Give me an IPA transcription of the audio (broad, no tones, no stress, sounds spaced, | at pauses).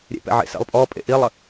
ɾʲ ḛ p ɛ̰ ʕ ḛ s ḛ lˠ pʼ ɔ pʼ ḛ ʔ i lˠ ə